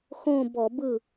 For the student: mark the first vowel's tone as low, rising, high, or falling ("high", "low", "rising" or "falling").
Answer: falling